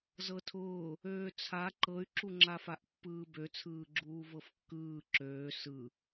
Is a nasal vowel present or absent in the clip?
absent